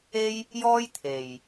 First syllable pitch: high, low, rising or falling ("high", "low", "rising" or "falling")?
high